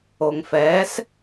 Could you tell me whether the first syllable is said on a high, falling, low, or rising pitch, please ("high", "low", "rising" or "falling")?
low